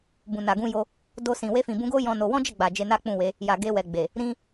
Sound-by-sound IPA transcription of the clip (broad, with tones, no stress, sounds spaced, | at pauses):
b ũ˨ n a˨ ɡ ũ˧ j o˧ | d o˧ s ĩ˨ w e˧ f ĩ˨ b ũ˧ ɡ o˦ j ɔ̃˦ n o˧ w ɔ̃˦ d͡ʒ ɛ˦˨ ɡ͡b a˨ d͡ʒ e˧ n a˦ k͡p ũ˦˨ w e˨˦ | j a˨ ɡ e˧ w ɛ˨ ɡ͡b e˨ | ɾ ĩ˦